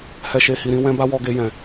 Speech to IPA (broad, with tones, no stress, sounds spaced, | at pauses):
h ɛ˨ ʃ e˨ h i˨ ɾ ĩ˧ w ɛ̃˧ b a˦ w ɔ˧ ɡ e˧ j ɛ̃˨